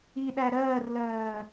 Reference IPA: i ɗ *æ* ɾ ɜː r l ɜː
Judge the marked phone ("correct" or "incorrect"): correct